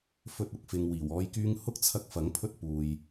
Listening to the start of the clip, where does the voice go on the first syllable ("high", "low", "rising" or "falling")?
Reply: high